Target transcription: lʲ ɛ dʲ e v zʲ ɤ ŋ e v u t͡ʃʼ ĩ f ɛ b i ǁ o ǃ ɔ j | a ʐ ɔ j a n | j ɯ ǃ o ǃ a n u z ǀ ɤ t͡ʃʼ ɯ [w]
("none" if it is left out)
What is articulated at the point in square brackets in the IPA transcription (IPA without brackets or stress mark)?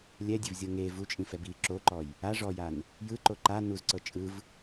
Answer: v